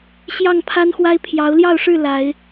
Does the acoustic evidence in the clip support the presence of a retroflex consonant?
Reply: yes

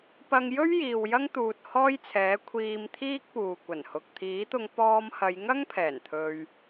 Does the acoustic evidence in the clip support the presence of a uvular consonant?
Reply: no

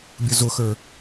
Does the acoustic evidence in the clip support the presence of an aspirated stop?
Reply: no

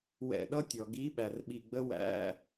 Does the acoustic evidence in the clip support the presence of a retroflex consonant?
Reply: no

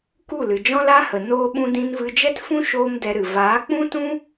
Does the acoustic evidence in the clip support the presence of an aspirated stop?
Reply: no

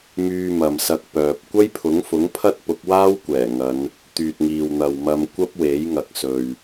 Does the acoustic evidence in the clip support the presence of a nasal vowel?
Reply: no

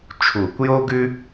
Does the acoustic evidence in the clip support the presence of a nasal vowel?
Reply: no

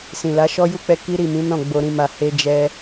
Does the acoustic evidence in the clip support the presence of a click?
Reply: no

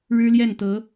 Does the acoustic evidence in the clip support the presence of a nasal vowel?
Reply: no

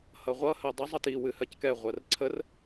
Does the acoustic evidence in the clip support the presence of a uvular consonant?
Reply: yes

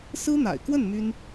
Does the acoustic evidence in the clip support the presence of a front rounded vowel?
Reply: yes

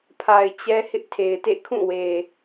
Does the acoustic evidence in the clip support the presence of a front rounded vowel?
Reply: no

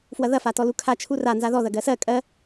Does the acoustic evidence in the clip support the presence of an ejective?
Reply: yes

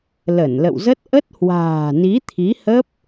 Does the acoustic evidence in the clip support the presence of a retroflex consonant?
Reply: no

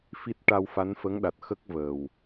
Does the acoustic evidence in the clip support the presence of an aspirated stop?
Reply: no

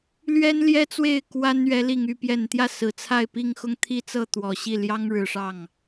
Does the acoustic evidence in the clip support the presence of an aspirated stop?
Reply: yes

